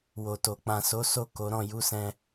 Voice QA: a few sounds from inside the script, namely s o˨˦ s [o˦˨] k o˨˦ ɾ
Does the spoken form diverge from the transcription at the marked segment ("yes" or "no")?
no